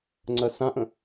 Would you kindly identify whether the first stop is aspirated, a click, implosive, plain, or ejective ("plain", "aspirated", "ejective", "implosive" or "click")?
click